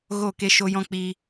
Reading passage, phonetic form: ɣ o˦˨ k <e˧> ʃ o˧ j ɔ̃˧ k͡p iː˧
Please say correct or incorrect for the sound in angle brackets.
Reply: correct